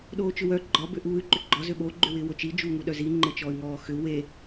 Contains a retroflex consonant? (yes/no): no